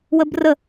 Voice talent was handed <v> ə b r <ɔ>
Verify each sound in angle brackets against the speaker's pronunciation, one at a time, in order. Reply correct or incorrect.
incorrect, incorrect

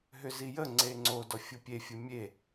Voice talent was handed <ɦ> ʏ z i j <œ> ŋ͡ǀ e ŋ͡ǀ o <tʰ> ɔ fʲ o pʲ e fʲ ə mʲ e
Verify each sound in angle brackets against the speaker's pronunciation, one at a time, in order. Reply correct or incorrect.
correct, incorrect, incorrect

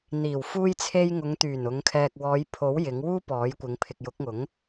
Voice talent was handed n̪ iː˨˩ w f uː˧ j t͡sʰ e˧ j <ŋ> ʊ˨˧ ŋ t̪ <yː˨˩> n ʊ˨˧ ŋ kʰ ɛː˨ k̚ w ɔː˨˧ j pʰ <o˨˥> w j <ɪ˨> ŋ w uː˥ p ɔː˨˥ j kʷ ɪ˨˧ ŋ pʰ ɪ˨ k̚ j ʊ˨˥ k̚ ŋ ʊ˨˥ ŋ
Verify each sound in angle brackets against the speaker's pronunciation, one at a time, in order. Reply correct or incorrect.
correct, correct, correct, incorrect

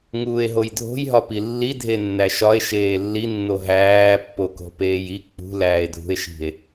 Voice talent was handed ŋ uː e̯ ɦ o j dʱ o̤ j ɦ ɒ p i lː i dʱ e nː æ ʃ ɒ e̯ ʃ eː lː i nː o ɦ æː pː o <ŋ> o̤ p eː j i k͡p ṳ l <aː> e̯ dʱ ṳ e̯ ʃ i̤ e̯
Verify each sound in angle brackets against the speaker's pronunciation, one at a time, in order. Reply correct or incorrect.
incorrect, incorrect

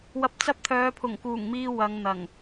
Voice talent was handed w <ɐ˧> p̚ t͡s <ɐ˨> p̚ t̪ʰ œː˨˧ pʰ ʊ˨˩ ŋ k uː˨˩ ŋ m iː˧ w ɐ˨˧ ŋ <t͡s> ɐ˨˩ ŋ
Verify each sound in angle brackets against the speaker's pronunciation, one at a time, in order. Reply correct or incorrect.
correct, incorrect, incorrect

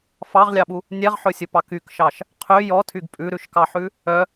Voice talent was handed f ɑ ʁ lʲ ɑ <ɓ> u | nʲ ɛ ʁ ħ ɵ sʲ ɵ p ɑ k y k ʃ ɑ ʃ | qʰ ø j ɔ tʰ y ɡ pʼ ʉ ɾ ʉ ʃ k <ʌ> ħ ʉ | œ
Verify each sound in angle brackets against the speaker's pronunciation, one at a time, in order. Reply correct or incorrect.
correct, incorrect

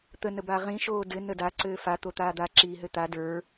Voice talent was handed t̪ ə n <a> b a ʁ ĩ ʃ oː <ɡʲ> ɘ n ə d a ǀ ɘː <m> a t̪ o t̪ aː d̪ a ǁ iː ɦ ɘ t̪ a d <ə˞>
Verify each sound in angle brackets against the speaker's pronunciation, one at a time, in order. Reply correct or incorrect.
incorrect, incorrect, incorrect, correct

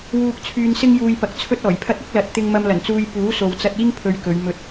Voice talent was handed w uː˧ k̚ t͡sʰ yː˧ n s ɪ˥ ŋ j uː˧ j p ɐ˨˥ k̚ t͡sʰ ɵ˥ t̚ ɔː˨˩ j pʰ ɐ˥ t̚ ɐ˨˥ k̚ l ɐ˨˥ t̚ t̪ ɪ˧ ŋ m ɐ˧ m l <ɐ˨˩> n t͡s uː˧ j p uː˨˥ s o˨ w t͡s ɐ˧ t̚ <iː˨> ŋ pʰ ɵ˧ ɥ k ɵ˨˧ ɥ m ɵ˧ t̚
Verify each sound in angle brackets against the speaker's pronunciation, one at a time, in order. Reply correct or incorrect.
correct, incorrect

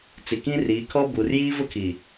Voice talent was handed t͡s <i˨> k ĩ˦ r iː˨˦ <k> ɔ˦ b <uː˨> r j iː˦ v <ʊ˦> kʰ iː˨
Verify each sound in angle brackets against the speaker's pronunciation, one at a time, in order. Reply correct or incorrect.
correct, incorrect, correct, correct

